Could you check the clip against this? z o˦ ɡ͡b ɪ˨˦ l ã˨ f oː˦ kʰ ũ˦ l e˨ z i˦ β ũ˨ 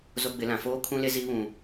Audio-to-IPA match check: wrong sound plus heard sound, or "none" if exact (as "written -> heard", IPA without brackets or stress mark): e˨ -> e˦